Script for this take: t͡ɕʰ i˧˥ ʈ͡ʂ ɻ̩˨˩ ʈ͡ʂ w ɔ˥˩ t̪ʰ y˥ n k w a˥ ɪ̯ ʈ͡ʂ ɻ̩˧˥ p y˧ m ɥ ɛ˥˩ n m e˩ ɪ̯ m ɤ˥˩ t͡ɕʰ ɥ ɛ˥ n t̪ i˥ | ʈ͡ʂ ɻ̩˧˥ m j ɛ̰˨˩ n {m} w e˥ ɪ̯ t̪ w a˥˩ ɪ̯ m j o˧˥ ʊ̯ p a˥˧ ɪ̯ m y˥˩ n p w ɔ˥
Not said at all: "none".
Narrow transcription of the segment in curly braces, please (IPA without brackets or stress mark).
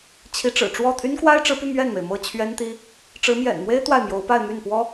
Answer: m